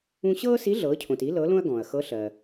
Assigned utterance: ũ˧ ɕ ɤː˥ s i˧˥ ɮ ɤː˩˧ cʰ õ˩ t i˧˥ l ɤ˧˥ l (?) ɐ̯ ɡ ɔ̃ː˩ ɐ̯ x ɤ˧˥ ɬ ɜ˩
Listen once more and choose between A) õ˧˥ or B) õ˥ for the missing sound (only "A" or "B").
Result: B